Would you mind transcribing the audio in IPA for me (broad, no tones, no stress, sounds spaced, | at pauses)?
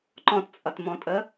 ǃ ɔ̃ t t͡sʼ ʌ t m ɔ̃ tʼ ə